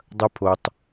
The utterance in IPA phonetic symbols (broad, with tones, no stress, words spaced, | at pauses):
dˤɐ˦pʰo˧tˤ